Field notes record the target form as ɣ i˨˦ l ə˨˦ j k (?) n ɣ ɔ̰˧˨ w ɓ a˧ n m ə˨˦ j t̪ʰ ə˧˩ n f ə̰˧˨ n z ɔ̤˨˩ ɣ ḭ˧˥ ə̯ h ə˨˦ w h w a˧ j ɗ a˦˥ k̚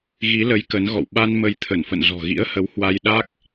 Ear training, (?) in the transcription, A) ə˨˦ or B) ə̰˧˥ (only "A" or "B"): A